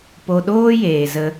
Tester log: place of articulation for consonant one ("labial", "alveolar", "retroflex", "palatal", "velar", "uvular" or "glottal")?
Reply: labial